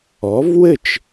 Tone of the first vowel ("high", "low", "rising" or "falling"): rising